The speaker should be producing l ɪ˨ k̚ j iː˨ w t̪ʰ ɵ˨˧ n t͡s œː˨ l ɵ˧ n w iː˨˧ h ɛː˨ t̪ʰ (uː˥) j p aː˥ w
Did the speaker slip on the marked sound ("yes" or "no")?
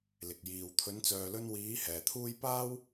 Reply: no